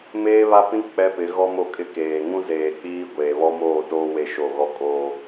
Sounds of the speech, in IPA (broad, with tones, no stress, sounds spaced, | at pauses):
m eː˦ β a˦ p ĩ˦ k͡p ɛ˦ p ɪ˨˦ ɣ ɔ˦ m o˦ kʼ ɪ˦ k eː˨ ŋ ũ˦ z eː˨ k͡p iː˦ ɡʷ eː˨ β ɔ˦ m oː˦˨ t oː˦ w e˦ ʃ o˦˨ ɣ ɔ˦ kʼ oː˦